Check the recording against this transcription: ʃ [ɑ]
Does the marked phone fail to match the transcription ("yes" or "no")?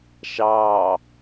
no